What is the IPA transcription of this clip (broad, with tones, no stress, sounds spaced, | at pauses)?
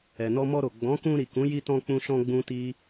ɛ˨ n ɔ˧ m ɔ˧ ɾ o˨ ɡ͡b ɔ̃˨˦ k ũ˧ ɾ i˨ k ũ˨˦ j i˧ t ɔ̃˧ k͡p ũ˧ ʃ ɔ̃˧ ɡ͡b ũ˦ t i˦